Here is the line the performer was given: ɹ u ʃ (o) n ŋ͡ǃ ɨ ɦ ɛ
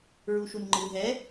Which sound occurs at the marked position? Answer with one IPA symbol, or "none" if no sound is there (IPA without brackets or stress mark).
u